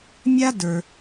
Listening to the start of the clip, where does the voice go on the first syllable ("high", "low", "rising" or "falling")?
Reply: high